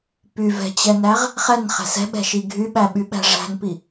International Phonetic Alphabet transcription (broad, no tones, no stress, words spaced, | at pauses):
pyvɛ̤t͡ɕɛnæʁ | χɛnχæ̤ sɛ̤ɓɛ̤ʃi ɡʱyɓæɓyɓæ̤ ʐæ̤npi